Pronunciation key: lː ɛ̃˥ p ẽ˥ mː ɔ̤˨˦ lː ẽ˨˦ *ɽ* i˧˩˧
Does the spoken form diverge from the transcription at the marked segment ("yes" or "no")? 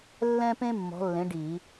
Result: yes